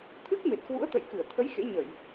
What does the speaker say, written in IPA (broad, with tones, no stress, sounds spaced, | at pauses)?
t̪ʰ ɨ˦˥ k̚ m e˨˩ t̚ k w ṵ˧˥ ə̯ t̪ ə̰˧˨ j k ɨ˧˩ ə̯ t̪ʰ ə˨˦ j x ḛ˧˥ ɲ ə˧˩˨ j